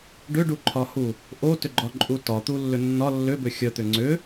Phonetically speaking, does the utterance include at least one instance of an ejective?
yes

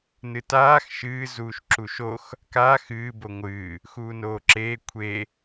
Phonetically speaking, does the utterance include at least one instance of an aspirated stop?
yes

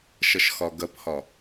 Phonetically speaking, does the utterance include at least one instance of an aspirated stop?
no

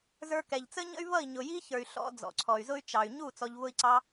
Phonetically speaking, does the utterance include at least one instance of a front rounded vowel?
yes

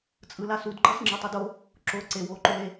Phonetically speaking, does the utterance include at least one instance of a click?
yes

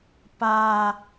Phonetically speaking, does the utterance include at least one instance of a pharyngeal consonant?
no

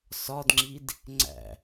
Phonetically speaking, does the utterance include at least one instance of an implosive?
no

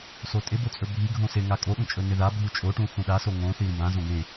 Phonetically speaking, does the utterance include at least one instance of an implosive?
yes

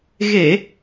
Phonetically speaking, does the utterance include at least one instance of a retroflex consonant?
no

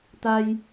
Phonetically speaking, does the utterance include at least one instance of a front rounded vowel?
no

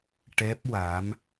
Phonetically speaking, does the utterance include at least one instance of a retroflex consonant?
yes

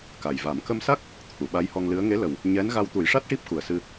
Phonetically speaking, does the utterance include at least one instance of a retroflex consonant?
yes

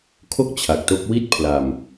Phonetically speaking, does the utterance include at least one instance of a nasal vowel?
no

